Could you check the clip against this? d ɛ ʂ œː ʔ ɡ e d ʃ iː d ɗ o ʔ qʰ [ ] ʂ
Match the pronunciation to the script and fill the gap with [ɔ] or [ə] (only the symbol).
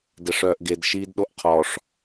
ɔ